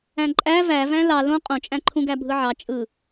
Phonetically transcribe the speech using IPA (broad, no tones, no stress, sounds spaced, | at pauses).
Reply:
æ̃ ǃʼ æ v æ v æ̃ l ɑ l õ qʼ õ t͡ʃʼ æ̃ ǃʰ ũ ɡ æ bʱ ɯ ʕ ɑ t͡ʃʼ ɯ